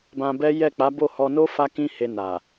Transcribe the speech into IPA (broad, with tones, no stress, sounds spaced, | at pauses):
b ã˧ b ɛ˦ j ɛ˦˨ k͡p a˨˦ b o˦˨ h ɔ˧ n o˦ f a˧ k ĩ˧ h e˧ n a˨